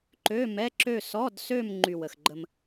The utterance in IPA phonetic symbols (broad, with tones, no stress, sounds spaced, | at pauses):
ǃ ø˧˥˧ m ɛ˧˥˧ ǁ ø˥˧ s ɔ˧˥˧ d s ø˥˧ m ŋ͡ǃ y˥˧ w ə˧ x ɡ͡ǃ ə˥ m